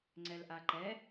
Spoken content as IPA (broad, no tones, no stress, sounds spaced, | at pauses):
ŋ͡ǀ ɛ l ʔ a ǃ ɛ